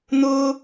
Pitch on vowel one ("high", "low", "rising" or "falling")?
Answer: high